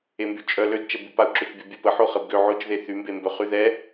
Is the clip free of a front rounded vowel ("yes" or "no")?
no